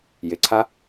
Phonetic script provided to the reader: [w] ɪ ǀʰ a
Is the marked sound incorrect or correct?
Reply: incorrect